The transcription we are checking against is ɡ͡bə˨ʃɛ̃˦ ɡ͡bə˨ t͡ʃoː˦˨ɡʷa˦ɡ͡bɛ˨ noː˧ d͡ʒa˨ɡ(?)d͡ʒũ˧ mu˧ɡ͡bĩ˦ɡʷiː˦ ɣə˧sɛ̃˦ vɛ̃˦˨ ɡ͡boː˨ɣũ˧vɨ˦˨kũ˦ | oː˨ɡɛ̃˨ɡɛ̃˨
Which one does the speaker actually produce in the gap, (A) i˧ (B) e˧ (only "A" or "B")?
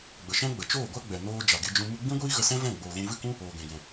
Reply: B